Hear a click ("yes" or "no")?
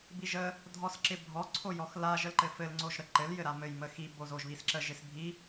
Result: yes